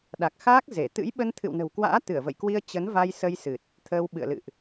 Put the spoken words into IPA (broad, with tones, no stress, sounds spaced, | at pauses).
ɗ a˨˩ k̚ x aː˦˥ k̚ z e˧˩ t̪ ɨ̰˧˥ j ɓ ə˧ n t̪ʰ ɨ̰˧˨ w n ə̤˨˩ w k w a̰ː˧˥ t̪ ɨ˧˩ ə̯ v ə̰˧˨ j k w i˧ ə̯ t͡ɕ ə˨˦ n v a˧ j s ə˧ j s ɨ˨˩ t̚ | t̪ʰ əː˧ w ɓ ɨ̰˧˨ ə̯ l ɨ̰˧˨ ʔ